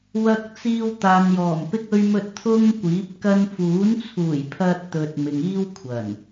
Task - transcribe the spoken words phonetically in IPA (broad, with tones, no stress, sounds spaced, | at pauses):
w ɐ˧ k̚ t͡s iː˧ w t̪ aː˨ n j ɔː˨˩ m p ɪ˧ k̚ ɵ˧ ɥ m ɵ˧ t̚ t̪ʰ ʊ˥ ŋ kʷ iː˨˥ p̚ k ɐ˧ n f uː˨˥ n t͡sʰ uː˨˩ j pʰ ɐ˧ t̚ t̪ ɵ˨ t̚ m ɪ˨ ŋ iː˥ w kʷʰ ɐ˨˩ n